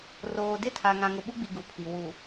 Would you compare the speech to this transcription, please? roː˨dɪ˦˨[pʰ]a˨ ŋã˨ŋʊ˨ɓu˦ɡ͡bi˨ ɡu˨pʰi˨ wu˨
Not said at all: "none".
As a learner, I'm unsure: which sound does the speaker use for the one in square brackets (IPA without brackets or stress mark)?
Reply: tʰ